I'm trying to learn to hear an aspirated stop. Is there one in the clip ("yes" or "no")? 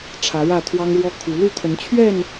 yes